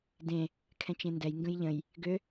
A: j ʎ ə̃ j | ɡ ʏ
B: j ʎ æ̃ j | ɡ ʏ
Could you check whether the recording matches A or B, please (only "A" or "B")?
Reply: A